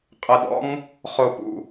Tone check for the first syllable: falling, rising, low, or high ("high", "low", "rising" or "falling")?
low